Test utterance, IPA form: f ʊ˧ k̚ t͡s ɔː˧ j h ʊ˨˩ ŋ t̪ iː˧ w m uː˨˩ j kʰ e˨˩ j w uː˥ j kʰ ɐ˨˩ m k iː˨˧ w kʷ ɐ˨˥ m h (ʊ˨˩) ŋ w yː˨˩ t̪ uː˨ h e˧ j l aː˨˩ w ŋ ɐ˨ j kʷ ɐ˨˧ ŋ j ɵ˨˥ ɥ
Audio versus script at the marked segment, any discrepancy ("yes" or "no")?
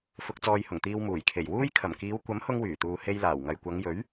yes